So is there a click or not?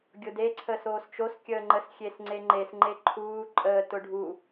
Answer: yes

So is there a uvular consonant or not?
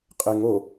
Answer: yes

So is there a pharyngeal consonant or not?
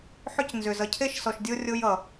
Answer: yes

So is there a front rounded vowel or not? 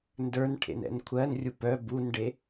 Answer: yes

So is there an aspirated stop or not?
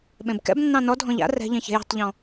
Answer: no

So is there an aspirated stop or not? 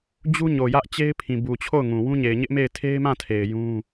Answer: yes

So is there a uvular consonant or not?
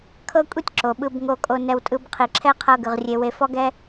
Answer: yes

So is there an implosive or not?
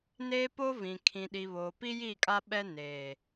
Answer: yes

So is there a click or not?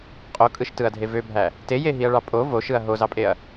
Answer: no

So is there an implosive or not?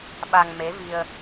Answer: yes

